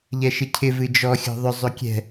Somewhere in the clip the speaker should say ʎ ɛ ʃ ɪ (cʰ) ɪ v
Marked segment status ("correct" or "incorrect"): correct